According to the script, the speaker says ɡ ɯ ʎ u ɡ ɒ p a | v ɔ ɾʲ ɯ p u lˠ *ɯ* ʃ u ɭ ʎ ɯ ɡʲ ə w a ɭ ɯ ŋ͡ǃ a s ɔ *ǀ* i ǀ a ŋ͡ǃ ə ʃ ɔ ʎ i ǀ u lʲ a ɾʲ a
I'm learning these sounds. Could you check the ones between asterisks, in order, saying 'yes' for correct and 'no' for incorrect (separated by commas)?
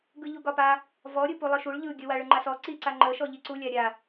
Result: yes, yes